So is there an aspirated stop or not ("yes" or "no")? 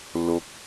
no